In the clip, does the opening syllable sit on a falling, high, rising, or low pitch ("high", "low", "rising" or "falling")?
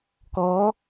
rising